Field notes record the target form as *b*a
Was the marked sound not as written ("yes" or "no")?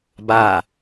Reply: no